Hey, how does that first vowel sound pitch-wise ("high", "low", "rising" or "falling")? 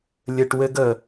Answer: low